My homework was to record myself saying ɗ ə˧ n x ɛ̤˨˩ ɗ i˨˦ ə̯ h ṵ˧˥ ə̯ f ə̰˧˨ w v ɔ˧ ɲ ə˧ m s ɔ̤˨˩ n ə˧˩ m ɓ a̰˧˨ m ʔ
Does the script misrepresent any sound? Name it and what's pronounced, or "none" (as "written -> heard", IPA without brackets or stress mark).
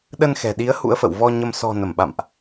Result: none